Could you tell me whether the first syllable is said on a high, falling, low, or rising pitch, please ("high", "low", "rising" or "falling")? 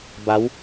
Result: rising